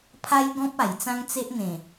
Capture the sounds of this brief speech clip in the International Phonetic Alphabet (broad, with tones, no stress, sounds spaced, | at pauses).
pʰ a˦ j ɡ ɔ̃˦ p̚ a˨˩ j t͡s ã˦ ŋ t͡s e˦ ʔ n̪ ẽ˨˩